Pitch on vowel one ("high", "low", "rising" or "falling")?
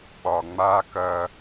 low